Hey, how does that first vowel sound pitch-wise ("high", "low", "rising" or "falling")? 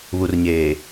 low